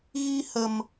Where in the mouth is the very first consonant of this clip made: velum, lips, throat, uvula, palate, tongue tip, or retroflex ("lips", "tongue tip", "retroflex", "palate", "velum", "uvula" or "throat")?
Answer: velum